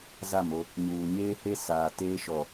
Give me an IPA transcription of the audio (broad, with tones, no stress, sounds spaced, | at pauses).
z a˦˨ m o˦ | ɲ uː˨ ɲ eː˦ h e˦ s aː˨ t eː˦ ʃ ɔ˨